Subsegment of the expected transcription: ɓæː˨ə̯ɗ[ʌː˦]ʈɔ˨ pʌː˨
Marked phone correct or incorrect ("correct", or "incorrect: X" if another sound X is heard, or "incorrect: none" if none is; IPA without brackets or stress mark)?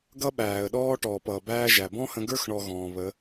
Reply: incorrect: ɔː˦